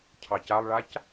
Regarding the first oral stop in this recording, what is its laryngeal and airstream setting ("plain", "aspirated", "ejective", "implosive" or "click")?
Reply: aspirated